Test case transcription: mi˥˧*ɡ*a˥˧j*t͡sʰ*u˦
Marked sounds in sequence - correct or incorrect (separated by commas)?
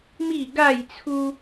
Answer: correct, correct